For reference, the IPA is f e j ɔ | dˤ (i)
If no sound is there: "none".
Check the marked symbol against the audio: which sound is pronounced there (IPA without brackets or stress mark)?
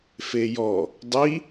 i